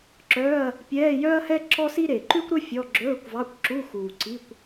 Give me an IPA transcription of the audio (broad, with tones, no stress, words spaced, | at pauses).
ǁœː˧˥˧ɐ̯ | pʲɛː˧˥˧jœ˥ɐ̯hɛ˥ ǁɔ˥si˥ɾe˨˩ ǃʉ˥kʷɾɵ˥ fʲɔ˧˥˧ ɡ͡ǁɵː˧˥˧kʷvɑ˧˥˧kʷǁu˧˥˧ xuː˨˩ǀi˧˥˧kʷ